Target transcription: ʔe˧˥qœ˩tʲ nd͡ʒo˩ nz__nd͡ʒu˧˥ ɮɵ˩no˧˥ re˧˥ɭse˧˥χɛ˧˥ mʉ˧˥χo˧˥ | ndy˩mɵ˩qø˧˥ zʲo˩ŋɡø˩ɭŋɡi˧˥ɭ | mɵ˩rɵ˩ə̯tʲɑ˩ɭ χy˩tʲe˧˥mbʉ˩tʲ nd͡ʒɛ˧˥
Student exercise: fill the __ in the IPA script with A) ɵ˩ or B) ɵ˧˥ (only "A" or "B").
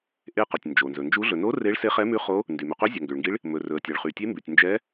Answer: A